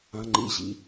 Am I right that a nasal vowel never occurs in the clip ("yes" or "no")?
no